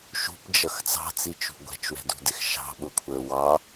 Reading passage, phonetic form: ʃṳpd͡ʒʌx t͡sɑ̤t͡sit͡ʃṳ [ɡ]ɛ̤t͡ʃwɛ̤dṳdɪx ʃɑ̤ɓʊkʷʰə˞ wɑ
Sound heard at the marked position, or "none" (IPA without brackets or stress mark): ɡʷ